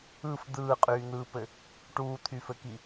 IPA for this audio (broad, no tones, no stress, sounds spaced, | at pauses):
ɯ f d̪ ɯː qʼ yː n̪ ɯː p ɘ | ʈ uː t̪ʰ y f ɘ k i